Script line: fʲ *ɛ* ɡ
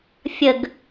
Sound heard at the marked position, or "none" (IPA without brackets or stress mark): ə